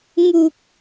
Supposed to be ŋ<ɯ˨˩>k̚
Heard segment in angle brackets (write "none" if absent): u˨˩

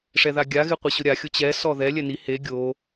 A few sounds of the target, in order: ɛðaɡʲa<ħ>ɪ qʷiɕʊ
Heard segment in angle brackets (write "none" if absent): ɣ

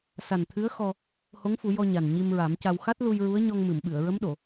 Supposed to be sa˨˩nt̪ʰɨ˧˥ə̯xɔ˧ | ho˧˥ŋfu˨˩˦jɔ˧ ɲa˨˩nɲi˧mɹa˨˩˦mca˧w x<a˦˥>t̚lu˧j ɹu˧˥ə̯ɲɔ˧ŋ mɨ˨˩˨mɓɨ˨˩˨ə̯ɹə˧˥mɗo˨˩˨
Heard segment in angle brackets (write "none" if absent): a˦˥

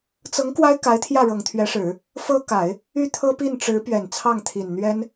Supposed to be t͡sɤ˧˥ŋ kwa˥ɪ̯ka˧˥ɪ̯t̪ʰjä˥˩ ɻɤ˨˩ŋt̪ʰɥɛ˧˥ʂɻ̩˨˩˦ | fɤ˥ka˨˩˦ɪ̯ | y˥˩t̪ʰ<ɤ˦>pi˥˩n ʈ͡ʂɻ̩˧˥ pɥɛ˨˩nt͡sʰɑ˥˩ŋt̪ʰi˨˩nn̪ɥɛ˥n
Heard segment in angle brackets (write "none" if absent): ɤ˥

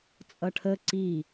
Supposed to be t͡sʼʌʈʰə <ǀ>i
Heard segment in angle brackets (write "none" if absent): ǀ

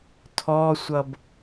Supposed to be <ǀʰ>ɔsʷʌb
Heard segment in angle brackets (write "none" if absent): tʰ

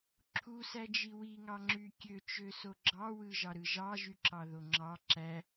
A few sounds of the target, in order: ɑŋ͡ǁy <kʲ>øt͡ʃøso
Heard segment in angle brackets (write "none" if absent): kʲ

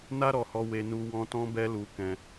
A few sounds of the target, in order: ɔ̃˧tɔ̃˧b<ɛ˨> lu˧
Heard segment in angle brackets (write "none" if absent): ɛ˧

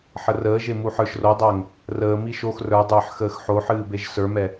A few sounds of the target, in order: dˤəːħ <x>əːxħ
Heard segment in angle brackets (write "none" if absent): x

